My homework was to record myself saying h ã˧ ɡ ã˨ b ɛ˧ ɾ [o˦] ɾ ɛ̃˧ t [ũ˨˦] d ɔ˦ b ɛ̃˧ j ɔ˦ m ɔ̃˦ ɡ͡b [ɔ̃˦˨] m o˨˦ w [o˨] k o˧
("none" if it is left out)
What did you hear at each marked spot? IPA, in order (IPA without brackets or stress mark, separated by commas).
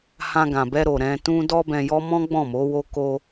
o˨, ũ˦, ɔ̃˦˨, o˦